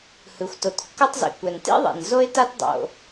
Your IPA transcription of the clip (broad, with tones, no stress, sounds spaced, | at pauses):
h ɯ˩ xʷ t o˩ t kː ɤ˥ tˤ z ḭ˩ kʷ ɛ˩ n t ḭ˥ ðˤ ḭ˩ n z o˥ ɪ̯ t a˥ t dˤ o̰˩